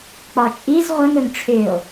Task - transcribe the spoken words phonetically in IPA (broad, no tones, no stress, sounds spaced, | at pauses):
k͡p ɒ t͡ʃʼ i z ʁʷ ə ŋ ɵ ŋ ʈ͡ʂʰ ʏ o̯